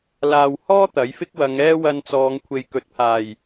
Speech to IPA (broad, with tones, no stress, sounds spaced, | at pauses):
l aː˨ w h ɔː˥ t̪ ɐ˨˥ j f ɪ˥ k̚ w ɐ˨˧ ŋ ɛː˥ w ɐ˧ n t͡s ɔː˨˧ ŋ kʷʰ e˨ j k ɵ˨˥ t̚ pʰ aː˨˩ j